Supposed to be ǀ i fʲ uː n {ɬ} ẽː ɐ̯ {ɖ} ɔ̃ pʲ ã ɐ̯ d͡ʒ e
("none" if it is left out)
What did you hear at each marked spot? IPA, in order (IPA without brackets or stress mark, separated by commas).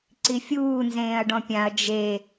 z, ɖ